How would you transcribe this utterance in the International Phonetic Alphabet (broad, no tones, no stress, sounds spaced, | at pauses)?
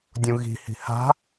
dʲ ũ ɣ i̤ h i̤ h a̤